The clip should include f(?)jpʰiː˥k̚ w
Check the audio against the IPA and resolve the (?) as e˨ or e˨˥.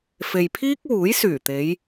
e˨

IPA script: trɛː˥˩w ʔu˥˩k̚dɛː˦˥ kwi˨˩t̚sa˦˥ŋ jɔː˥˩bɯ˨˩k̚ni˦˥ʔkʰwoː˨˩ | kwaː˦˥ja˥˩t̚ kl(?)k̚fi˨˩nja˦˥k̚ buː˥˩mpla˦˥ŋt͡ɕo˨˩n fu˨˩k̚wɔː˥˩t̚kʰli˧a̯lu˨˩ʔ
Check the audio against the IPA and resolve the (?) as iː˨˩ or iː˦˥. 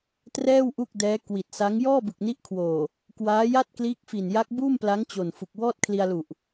iː˦˥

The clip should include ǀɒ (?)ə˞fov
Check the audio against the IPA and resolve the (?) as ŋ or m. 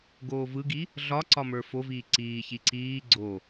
m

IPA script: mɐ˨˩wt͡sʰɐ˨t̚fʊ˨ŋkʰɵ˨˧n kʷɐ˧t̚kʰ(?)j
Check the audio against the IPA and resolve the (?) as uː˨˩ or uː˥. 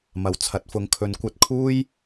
uː˥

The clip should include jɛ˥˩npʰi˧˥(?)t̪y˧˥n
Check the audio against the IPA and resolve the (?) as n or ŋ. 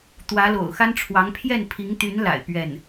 ŋ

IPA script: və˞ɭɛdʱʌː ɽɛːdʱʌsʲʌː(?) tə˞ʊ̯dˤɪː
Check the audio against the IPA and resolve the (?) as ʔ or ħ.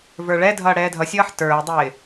ħ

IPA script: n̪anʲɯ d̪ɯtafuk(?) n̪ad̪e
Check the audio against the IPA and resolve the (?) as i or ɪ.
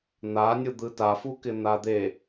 ɪ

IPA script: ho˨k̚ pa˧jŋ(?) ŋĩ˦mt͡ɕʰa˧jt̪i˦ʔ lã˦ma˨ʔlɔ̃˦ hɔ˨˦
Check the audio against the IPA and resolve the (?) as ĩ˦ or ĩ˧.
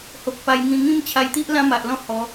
ĩ˧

